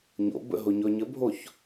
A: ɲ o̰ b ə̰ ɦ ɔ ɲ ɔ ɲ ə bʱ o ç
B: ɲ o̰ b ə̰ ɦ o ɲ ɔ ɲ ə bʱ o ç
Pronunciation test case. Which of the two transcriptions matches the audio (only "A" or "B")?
B